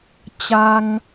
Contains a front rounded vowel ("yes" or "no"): no